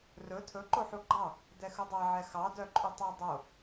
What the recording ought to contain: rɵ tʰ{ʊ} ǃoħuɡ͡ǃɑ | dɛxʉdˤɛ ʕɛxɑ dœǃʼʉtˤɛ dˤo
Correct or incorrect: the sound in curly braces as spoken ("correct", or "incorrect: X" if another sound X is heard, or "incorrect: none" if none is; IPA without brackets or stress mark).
incorrect: ɵ